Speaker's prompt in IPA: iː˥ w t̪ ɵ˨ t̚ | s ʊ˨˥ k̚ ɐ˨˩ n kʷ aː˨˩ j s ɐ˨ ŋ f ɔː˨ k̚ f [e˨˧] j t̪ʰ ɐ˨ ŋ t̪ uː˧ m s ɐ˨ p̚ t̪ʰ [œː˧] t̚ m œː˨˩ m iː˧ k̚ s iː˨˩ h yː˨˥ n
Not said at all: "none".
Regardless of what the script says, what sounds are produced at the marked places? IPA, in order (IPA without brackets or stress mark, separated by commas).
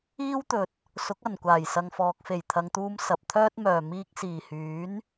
e˨˩, œː˥